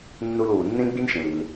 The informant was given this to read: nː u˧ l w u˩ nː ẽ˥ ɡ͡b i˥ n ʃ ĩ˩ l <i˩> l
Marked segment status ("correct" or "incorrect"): correct